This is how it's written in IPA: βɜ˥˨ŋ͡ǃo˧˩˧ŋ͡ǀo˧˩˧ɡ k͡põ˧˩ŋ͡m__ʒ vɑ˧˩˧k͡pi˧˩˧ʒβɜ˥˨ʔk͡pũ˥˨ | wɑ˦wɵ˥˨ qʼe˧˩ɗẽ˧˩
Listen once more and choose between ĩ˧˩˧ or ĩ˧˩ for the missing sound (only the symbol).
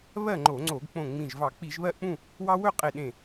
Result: ĩ˧˩